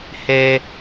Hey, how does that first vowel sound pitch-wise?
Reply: high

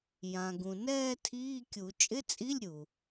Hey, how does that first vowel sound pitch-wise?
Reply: low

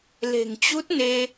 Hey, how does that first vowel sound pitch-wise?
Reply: low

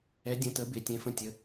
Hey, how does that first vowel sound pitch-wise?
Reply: rising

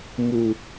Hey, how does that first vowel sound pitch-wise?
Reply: low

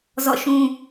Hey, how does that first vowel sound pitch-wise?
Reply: falling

